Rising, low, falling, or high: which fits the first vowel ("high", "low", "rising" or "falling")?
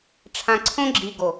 low